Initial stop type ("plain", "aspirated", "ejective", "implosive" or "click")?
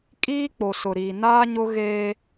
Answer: ejective